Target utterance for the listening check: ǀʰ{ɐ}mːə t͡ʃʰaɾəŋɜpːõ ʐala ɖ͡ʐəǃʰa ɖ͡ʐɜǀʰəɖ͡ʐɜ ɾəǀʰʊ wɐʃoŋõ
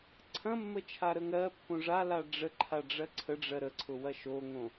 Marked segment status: incorrect: ɐ̃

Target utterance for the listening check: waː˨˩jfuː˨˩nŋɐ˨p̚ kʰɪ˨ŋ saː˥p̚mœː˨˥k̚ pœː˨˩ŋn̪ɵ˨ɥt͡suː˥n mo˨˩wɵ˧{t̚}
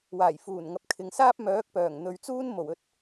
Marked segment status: correct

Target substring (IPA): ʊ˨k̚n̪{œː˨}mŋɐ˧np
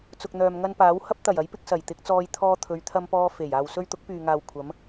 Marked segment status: correct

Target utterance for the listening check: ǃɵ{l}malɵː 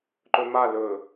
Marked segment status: incorrect: none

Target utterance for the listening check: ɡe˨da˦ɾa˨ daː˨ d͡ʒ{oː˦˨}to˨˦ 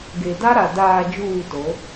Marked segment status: incorrect: uː˦˨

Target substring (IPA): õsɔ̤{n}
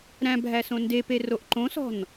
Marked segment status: correct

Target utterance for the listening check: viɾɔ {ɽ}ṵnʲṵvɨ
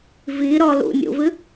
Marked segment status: incorrect: l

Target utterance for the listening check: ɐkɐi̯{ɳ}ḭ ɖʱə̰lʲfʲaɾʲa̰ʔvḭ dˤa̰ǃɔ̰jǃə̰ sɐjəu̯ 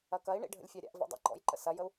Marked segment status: correct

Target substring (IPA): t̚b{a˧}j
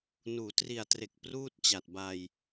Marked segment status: correct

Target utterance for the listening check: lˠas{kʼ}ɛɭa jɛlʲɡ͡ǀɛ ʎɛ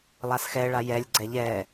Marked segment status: incorrect: x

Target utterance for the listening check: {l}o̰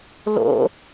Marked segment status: correct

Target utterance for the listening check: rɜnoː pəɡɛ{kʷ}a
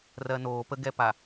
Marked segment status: incorrect: p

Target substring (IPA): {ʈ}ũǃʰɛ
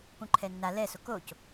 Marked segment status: incorrect: p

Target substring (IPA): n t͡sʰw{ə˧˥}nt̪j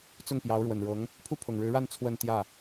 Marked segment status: incorrect: ə˥˧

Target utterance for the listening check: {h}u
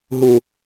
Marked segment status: incorrect: ɦ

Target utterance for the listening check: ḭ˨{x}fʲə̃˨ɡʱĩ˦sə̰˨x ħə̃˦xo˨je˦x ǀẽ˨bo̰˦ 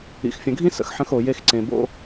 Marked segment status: correct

